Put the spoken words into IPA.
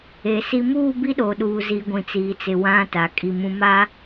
e˨ si˨muː˦˨ bi˦ɗo˨ɗuː˨ zi˨ɡʷĩ˨ t͡siː˨t͡sɪ˨ wã˦ta˨ kʼi˨ mũ˦ma˦

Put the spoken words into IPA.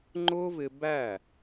ŋ͡ǃʊː˦vɪ˧ bæ˦˨

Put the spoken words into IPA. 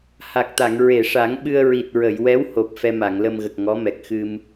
ha˨˩k̚t̪a˨˩˨ŋ ɹe˨˩˨ʂa˨˩˦ŋ ɓɨ˧ə̯ ɹi˨˩t̚ɹə˨˩˨jwɛ˧˥who˨˩p̚ fɛ˧ma˨˩˨ŋlə˧m ɣə˨˩k̚ŋɔ˧˥mɛ˨˩k̚ xɨ˧m

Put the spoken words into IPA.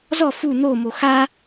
zɔ fu n̪omo xa

